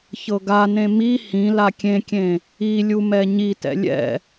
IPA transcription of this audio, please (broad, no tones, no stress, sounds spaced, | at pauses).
ç ɤ ɡ a n ẽ m i h ĩ l a kʲ ẽ kʲ ẽ | i lʲ u m ɛ ɲ i t ɛ̰ lʲ ɛ̰